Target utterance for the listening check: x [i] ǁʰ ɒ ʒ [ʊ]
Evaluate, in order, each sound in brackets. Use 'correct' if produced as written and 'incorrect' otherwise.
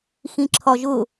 incorrect: ĩ, correct

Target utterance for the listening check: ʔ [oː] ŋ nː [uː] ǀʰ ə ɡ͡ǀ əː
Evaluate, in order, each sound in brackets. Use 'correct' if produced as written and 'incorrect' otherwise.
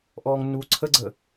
incorrect: ɔː, correct

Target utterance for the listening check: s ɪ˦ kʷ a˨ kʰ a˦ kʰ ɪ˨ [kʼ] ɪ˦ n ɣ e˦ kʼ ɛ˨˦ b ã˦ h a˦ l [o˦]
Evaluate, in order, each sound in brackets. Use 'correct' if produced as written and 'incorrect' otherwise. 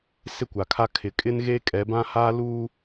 correct, incorrect: u˦

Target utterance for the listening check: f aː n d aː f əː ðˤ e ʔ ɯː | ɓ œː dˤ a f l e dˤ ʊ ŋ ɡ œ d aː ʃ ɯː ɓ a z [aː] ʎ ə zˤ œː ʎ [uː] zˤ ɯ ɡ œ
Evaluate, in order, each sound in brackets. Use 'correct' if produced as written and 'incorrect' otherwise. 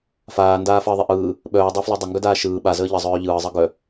incorrect: əː, incorrect: ɯː

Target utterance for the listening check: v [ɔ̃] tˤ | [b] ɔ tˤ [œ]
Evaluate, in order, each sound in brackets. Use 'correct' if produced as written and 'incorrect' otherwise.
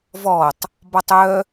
incorrect: ɔ, correct, correct

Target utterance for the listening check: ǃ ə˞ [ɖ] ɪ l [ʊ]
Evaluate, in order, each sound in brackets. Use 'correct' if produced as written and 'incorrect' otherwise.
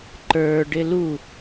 correct, incorrect: u

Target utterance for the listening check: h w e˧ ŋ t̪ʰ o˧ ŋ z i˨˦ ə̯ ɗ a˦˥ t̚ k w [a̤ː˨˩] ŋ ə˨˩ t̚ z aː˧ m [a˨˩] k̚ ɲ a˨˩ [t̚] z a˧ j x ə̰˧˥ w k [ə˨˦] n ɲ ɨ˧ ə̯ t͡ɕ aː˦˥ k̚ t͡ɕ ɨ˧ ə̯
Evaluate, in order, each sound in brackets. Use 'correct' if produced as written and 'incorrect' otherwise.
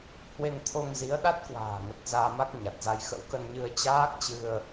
correct, incorrect: a˦˥, correct, incorrect: ə˧

